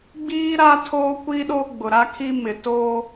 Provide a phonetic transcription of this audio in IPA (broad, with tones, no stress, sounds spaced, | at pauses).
ɡ͡b iː˦ ɾ a˦ tʰ oː˦ kʷ i˦ ɗ o˦ ɡ͡b ʊ˨ ɾ a˦ kʰ i˦ m ɪ˨ t oː˦